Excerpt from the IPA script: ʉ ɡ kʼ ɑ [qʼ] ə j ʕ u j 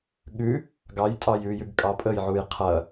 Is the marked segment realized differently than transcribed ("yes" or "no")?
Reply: yes